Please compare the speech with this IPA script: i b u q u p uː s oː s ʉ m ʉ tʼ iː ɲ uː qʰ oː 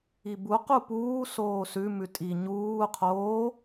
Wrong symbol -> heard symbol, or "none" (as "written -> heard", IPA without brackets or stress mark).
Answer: iː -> i